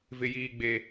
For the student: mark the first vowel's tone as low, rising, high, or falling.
low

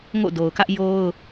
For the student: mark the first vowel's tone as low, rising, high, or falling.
falling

